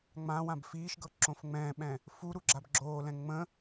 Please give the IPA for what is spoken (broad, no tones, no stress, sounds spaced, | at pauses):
ŋ͡m ã w ã b f iː ʃ ɡ ɤ ǁ õ f ŋ͡m ɛ̃ː ɓ ɛ̃ | f u ɾ u ɡ͡ǁ a b ɡ͡ǁ oː l ɛ̃ ŋ͡m ə̃